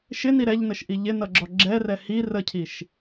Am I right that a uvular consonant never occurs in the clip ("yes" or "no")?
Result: yes